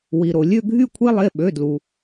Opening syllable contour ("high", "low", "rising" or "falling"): low